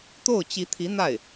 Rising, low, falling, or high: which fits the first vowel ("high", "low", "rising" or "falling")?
falling